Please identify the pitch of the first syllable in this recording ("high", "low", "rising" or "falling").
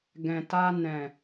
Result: low